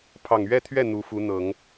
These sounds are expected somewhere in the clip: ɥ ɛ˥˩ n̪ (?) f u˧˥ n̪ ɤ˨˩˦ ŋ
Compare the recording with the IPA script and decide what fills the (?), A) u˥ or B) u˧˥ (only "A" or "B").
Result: B